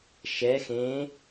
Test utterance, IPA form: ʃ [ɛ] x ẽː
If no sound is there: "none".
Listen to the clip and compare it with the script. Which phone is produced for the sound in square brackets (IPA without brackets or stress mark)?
ɛ